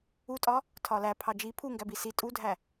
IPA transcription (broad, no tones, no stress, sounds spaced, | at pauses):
u tʼ ɒ | tʰ ɒ l æ pʰ ɑ d͡ʒ i pʰ u ŋ ɡ æ b i s i tʼ u dʱ æ